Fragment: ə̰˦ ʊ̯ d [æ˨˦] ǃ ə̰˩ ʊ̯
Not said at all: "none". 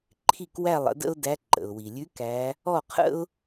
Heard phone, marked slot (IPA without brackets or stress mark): æ˨˦